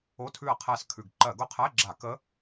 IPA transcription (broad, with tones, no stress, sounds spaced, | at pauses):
o˧˥˧ tʰ ʉ˦˨ ɐ̯ qʰ æ˦˨ s kʰ ʉ˨˩ ɡ ǃ ɜ˧˩˧ ɡ ʊ˦˨ qʰ æ˧˥˧ ɡ͡ǁ a˧˩˧ k ə˧˥